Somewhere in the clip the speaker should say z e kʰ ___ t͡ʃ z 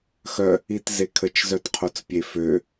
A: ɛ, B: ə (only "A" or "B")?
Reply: B